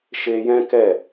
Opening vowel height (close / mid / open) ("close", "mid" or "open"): mid